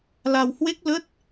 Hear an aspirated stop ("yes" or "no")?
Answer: no